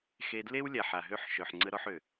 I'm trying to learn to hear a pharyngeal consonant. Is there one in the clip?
yes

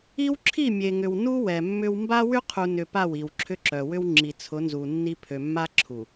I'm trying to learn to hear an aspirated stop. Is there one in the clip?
yes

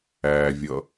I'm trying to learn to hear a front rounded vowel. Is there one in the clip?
no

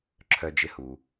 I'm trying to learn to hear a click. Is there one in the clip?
yes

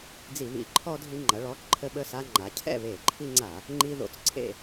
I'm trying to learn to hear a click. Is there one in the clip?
yes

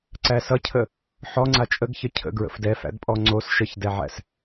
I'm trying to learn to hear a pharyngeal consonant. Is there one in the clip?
yes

